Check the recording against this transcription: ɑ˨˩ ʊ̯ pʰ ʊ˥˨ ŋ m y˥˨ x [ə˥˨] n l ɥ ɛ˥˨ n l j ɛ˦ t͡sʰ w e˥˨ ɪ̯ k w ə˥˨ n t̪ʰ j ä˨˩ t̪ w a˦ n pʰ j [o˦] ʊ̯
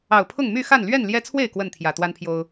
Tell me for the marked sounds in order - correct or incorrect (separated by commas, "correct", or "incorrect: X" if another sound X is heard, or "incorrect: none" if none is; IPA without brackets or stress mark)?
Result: incorrect: a˥˨, correct